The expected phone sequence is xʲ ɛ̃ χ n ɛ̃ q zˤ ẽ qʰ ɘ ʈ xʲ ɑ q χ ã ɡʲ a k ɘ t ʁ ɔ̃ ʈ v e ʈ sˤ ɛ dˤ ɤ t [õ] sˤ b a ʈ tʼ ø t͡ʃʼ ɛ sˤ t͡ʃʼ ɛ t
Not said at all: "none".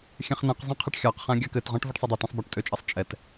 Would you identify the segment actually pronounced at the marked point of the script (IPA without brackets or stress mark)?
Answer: ɔ̃